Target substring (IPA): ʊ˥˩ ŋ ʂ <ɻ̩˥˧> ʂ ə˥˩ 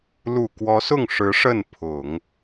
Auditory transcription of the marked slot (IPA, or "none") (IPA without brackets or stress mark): ɻ̩˧˥